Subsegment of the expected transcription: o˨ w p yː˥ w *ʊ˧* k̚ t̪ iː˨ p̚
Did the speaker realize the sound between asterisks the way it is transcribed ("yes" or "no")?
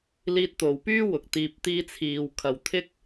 no